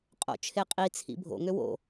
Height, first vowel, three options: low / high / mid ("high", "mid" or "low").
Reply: mid